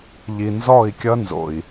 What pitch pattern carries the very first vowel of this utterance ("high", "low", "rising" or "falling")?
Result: low